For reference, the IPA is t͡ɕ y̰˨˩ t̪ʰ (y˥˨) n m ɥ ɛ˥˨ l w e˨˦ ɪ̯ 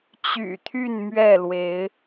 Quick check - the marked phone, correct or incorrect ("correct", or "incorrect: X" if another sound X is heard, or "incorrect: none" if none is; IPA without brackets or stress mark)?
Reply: correct